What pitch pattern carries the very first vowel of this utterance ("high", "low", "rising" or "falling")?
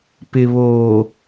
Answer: low